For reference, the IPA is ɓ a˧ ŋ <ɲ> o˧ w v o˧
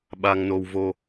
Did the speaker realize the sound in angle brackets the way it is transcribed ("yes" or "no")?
no